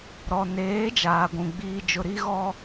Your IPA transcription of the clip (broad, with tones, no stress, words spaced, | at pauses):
ɾɔ˨neː˨˦ d͡ʒaː˨ɡʷũ˨ ɡ͡biː˨d͡ʒʊ˨ ɾi˦ɣɔ˦